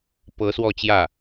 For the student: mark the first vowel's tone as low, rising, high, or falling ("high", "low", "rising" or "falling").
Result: rising